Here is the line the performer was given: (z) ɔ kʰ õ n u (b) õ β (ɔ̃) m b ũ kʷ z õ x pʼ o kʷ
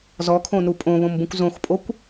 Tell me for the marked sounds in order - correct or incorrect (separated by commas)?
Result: correct, incorrect, incorrect